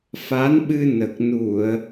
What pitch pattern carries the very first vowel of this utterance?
rising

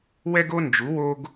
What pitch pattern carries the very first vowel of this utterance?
high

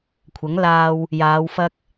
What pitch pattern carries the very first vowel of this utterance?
rising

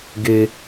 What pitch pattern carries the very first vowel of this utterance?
low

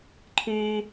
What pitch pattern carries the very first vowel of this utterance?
high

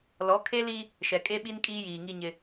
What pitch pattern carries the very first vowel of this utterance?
rising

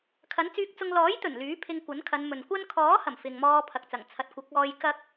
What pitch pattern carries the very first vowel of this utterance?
rising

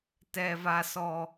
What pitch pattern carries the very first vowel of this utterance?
high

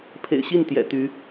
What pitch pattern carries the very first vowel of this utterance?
low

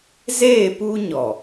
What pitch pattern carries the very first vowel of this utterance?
falling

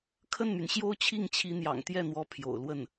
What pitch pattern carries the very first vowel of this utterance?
falling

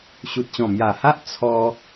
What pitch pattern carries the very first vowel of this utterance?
low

